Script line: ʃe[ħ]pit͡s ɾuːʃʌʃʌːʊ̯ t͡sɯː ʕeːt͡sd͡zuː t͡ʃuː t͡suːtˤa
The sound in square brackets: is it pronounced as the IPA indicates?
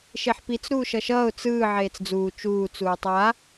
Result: yes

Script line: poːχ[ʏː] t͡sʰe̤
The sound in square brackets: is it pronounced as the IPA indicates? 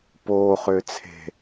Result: yes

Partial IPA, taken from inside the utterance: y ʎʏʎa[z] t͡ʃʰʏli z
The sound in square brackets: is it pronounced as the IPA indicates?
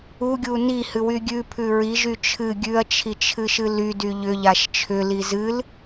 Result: no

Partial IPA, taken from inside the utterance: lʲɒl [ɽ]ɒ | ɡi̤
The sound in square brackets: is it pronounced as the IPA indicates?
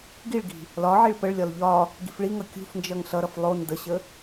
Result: no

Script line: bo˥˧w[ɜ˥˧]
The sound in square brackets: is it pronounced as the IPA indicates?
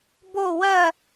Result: yes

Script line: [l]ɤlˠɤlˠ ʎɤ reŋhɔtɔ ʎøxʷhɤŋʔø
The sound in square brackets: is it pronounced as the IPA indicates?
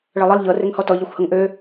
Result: no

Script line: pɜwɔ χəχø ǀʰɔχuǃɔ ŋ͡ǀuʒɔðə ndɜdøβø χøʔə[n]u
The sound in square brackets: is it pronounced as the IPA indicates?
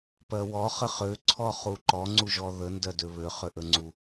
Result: no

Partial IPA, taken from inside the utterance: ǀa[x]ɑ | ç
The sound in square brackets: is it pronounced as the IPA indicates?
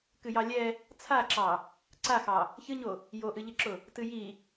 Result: yes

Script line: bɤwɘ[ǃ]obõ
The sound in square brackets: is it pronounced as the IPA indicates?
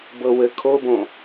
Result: no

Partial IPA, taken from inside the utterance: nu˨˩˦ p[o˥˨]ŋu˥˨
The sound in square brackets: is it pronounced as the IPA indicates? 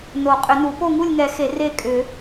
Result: yes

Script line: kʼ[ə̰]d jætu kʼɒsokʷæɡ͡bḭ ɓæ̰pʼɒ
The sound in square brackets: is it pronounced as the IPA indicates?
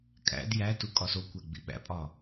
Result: no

